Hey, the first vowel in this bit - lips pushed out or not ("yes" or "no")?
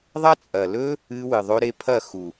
no